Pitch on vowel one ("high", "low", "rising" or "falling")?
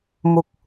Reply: low